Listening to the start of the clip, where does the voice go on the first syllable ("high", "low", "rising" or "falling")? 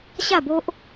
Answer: falling